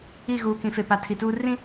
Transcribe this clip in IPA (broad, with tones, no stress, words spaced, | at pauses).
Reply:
i˦˨ɣuː˨kĩ˨ fe˨pa˨ tʰi˨tuː˦ rĩ˦